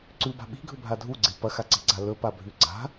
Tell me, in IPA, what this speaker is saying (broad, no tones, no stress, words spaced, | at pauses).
ǀʉba̤ ɓi̤ɡʱɵbʱa dʱuɡ͡ǀe pɐxaǀe̤ɡ͡ǀa lɵpabʱʉ ɡ͡ǀa̤